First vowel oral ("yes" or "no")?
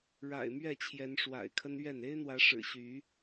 yes